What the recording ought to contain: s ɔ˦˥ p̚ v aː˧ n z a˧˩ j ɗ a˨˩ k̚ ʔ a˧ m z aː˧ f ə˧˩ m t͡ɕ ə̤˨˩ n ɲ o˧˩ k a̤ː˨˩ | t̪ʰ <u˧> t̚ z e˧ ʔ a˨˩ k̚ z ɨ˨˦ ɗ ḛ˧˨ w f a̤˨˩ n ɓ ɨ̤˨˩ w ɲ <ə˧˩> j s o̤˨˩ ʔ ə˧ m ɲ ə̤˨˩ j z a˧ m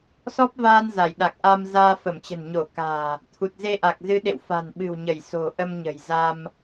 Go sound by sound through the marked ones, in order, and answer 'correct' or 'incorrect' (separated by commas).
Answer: incorrect, correct